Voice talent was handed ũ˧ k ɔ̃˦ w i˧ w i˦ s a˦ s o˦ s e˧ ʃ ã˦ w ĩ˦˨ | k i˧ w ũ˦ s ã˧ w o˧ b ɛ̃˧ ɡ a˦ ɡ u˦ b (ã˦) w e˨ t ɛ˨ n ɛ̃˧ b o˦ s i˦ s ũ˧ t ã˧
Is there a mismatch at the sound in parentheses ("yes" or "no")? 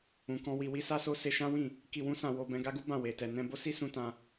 yes